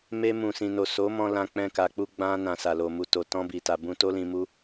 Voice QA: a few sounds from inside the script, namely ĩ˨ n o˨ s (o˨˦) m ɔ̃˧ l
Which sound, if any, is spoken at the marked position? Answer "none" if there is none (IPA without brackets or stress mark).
o˨˦